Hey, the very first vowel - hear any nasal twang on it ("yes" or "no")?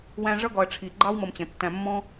yes